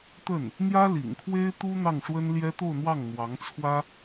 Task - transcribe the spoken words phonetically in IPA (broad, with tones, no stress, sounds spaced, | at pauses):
t̪ ə˥˩ n | n̪ j ä˥ l ḭ˨˩ ŋ kʰ w e˥ ɪ̯ t̪ u˥ n̪ ɑ˥˩ ŋ ʂ w ə˥ n l j ɛ˥ t̪ o˥˧ ʊ̯ n̪ w ɑ˥˩ ŋ n̪ w ɑ˧˥ ŋ t͡sʰ w ä˥